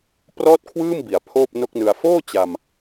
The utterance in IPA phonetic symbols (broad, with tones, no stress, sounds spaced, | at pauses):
p r ɔː˥˩ t̚ kʰ w ɯː˥˩ m b i˩˦ a̯ pʰ oː˥˩ p̚ n o˥˩ k̚ n ɯ˧ a̯ f oː˥˩ t͡ɕ a˧ m